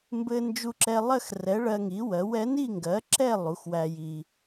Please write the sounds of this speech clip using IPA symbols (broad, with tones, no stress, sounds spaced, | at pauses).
m b ɘ˧ n d͡ʒ u˧ ǁ ɛ˧ lˠ ɜ˥˨ x r ɛ˩˥ ɭ ɜ˧ ŋ i˩˥ w ɜ˩˥ w ɛ˩˥ n i˥˨ ŋ ɡ ɜ˩˥ ǁ ɛ˥˨ lˠ u˩˥ x w æ˧ j i˧